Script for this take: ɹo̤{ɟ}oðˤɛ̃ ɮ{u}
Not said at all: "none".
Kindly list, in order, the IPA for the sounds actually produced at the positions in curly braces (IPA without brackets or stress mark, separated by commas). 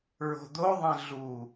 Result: d̪, u